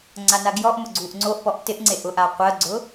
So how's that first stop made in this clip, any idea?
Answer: click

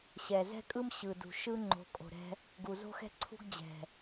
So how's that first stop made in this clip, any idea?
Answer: ejective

